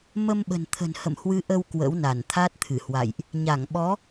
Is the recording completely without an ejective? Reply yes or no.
yes